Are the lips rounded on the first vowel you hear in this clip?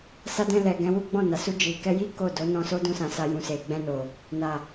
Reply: no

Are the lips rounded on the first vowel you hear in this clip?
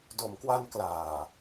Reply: yes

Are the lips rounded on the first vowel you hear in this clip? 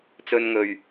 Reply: yes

